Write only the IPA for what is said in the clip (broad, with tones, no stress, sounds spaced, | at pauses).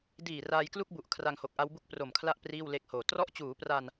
d iː˨˩ r aː˧ j k l u˥˩ k̚ b u˨˩ ʔ kʰ r a˧ ŋ h o˨˩ k̚ ʔ a˦˥ w b u˥˩ k̚ p r o˨˩ m kʰ l a˥˩ ʔ p r iː˥˩ w l e˥˩ k̚ h oː˨˩ t r ɔ˥˩ ʔ t͡ɕ uː˩˦ p r a˧ n